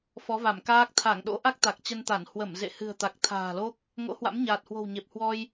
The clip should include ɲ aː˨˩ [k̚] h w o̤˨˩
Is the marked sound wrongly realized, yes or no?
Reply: yes